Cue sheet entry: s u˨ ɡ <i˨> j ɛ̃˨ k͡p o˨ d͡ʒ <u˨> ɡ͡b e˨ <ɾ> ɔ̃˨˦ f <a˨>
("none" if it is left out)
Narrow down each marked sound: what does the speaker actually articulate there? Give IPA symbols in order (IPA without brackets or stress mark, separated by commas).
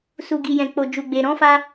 i˨, u˨, ɾ, a˧